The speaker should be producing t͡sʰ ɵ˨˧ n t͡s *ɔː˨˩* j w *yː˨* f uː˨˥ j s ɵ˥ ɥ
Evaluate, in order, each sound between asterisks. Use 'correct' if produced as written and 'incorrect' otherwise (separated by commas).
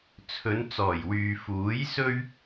correct, correct